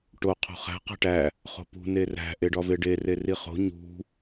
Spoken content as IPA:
ʈ o qʰ o̤ χ æ̤ q æ̤ ʈ æ | χ o̤ p ṳ n e r æ̤ ʔ e ɖ ɒ v e ɖ e r e r i χ o̤ ɲ ṳ

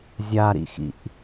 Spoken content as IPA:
zʲ a ɾ ḭ x ḭ ʔ

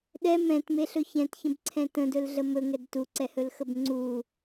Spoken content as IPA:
ɗ ɛ m ɛ̃ t m e ɬ ɵ ç ɛ̃ t ç ə̃ b ǀʰ ɛ̃ t ə̃ d ɵ l ɮ ə m ɵ ŋ ɛ d t u ǀ ɛ h ɵ l x ə b ŋ͡ǀ u

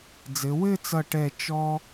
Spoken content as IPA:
d͡z ɘ˩˧ w ɘ˥˧ t͡s ʌ˧˩ ʈ ɛ˧˩ t͡ʃ ɔ˧

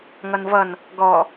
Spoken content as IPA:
ŋ ʌ n v ʌ n | ɡ ɔ

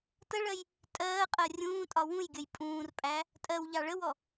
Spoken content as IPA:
t ə ɭ ɜ j | tʼ ɜː qʼ ɜ rʲ ũː tʼ ɒ w ũ j ɡʲ ə j pʼ ũː r pʼ æ | tʼ ɜ w ʎ ɑ ɭ ə w ɔ

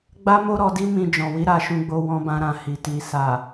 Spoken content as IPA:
ɡ͡b a˦ m o˦ ɾ ɔ˧ d i˦ m ĩ˧ d͡ʒ ɔ̃˨ w i˨˦ ɾ a˦˨ ʃ ũ˧ ɡ͡b o˧ w ɔ̃˧ b ã˧ ɾ ã˨ h i˨ t i˨ s a˨

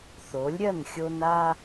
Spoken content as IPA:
θ o˨˦ lʲ ɾʲ ɐ˦˨ n xʲ o˦ n a˦

